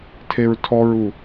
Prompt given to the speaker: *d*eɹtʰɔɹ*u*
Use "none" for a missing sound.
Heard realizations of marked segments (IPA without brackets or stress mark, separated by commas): tʰ, u